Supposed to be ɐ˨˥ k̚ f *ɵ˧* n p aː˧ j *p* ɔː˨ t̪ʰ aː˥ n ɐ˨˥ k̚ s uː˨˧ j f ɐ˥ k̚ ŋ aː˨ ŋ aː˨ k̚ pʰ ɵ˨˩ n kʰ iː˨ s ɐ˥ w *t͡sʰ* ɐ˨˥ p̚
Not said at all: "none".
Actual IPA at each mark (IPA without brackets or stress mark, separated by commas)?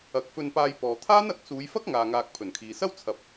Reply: ɵ˧, p, t͡sʰ